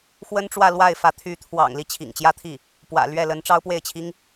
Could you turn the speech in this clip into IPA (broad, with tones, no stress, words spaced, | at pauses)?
xwə˥nʈ͡ʂwä˥˧lwa˥˩ɪ̯fä˧˥ t̪ʰy˧˥t̪ʰwɑ̰˨˩ŋ li˥˩t͡ɕʰḭ˨˩ŋt͡ɕjä˥t̪ʰi˥˩ | pwä̰˨˩lɥɛ˥˩lə˧˥n ʈ͡ʂɑ˥ʊ̯pwe˥˩ɪ̯t͡ɕʰi˥ŋ